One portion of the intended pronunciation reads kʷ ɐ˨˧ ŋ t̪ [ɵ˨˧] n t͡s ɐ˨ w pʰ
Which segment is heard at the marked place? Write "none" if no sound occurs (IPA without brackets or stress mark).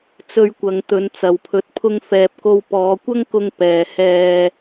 ɵ˨˧